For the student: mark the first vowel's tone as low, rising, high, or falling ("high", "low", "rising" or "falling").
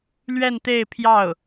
falling